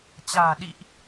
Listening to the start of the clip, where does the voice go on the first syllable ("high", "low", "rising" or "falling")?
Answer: low